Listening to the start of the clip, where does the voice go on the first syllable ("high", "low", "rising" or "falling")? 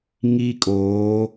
high